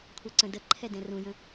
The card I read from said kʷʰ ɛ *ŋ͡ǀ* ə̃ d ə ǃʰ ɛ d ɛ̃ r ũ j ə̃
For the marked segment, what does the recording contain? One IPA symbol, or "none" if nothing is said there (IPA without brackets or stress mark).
ǀ